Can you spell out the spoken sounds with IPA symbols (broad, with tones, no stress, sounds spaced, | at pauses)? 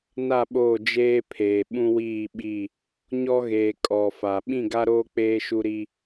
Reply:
n a˦˨ ɓ oː˦˨ d͡ʒ eː˦ pʰ eː˨ ɓ ũ˦ w iː˦˨ ɓ i˦˨ | ɲ ɔ˦ ɣ eː˨ kʼ ɔ˨ f a˨ ɓ ĩ˦˨ ɡ a˦ ɾ oː˦ k͡p eː˦ ʃ u˦ ɾ i˦